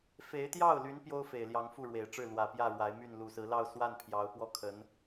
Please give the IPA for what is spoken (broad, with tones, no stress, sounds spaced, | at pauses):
f e˧˥ ɪ̯ t̪ j ɑ˥˩ ʊ̯ l y˧˥ n p j o˥ ʊ̯ f e˨˩ ɪ̯ l j ɑ˧˥ ŋ f u˥˩ ɻ w e˨˩ ɪ̯ ʈ͡ʂ ɻ̩˥˩ l w ä˨˩ p j ä˥˩ ɻ w a˧˥ ɪ̯ m y˥˩ n l u˨˩ s ɹ̩˧˥ l ɑ˥˧ ʊ̯ s w a˥˩ n pʰ j ɑ˧˥ ʊ̯ p w ɔ˥ kʰ ə˧˥ n